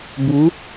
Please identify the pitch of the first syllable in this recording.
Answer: rising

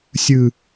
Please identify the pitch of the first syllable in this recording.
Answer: low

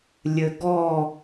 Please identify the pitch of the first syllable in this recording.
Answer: low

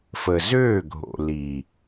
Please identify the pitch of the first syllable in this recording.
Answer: low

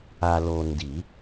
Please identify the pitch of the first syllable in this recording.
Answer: low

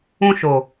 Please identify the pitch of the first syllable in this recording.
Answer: high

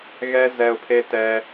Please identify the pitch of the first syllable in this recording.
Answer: high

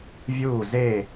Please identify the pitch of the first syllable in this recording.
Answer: falling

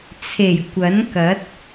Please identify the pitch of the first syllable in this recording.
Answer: low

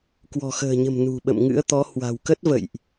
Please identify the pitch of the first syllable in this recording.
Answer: low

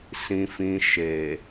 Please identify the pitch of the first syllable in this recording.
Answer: low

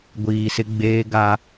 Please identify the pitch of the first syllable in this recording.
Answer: low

